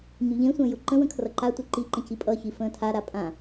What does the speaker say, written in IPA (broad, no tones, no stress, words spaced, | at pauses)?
ɲyʎẽsʷə̃ː jʊǃə̃wə̃ kʰrʌǃatʷe ǃiǃə̃ cipʼʌçi fə̃ːtʰaɾa pʼã